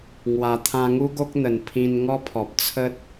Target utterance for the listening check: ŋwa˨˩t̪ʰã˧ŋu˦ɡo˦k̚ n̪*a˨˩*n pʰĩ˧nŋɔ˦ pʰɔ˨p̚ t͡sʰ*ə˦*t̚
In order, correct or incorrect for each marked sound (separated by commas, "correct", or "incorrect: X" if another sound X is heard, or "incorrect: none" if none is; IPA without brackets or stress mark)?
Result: incorrect: ə˨˩, correct